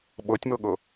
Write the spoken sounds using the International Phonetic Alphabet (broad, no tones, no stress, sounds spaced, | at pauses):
ɓ ɤ tʲ m ɤ ɠ ɤ